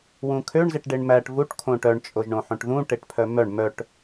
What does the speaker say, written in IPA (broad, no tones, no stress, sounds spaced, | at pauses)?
w ũ kʰ ø ɳ z e ʈ ɖ e ɳ m æ ʈ v u ʈ kʰ õ ʈ œ ɳ t͡ʃʼ o ʒ ɳ õ ħ õ ʈ ð ũ ʈ e ʈ pʰ œ m œ ɳ m œ ʈ